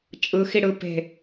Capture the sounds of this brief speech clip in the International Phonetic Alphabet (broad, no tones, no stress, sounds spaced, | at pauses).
t͡ʃʼ ɯ x i ɽ ɯ p e̤